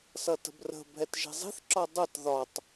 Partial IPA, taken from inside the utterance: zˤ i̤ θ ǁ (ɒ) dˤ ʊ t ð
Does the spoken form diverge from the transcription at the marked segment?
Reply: no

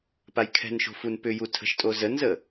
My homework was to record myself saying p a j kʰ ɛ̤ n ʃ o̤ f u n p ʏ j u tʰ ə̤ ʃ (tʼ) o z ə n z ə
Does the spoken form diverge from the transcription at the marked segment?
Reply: no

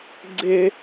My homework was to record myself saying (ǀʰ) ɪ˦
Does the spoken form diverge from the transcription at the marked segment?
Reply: yes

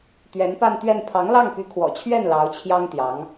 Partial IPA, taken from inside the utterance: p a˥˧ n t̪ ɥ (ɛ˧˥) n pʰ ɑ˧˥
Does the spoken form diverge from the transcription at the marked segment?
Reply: yes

